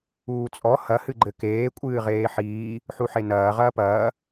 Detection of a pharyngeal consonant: present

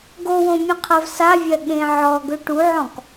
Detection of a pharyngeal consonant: present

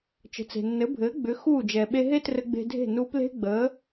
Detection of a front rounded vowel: present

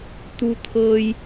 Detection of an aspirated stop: present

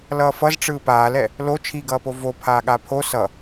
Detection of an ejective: absent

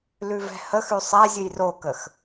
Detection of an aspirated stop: absent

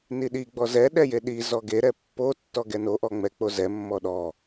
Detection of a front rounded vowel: absent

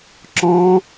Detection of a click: present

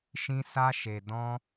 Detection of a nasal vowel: present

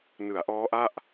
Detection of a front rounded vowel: absent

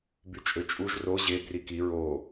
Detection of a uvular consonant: absent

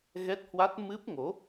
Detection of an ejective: absent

